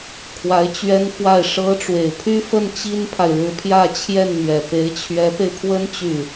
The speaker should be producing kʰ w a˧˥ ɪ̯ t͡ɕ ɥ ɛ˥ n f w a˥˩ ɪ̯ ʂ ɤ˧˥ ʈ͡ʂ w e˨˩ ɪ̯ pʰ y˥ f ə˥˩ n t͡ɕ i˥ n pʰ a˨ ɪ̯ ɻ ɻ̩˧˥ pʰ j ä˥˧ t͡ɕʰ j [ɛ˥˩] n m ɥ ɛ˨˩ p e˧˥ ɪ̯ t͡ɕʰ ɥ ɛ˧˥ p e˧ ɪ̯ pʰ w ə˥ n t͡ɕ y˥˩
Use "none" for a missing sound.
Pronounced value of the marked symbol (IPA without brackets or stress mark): ɛ˥˩